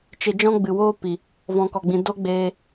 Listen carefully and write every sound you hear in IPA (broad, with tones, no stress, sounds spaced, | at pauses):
t͡ʃ e˧ d͡ʒ ɔ̃˦ ɡ͡b ɨ˨ w oː˦ p i˨ | v ɔ̃˨ k ɔ˨ ɡ͡b ĩ˨ d o˦ ɡ͡b eː˧